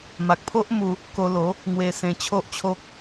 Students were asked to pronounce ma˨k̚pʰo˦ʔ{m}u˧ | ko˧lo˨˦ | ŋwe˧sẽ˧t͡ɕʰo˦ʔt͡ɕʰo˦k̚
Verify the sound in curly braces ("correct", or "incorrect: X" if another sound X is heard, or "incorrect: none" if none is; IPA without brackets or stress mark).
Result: correct